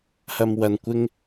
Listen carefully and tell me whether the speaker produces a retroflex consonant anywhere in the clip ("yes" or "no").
no